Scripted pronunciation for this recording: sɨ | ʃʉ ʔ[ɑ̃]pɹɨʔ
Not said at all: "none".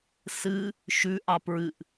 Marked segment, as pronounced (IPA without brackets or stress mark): ɑ